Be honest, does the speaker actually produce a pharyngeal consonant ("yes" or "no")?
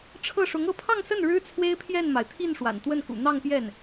no